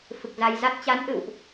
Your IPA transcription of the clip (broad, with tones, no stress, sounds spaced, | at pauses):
f ɨ˨˩ k̚ z a˧ j z a˦˥ t̚ t͡ɕ a˨˦ n ʔ ɨ̰˧˨ w ʔ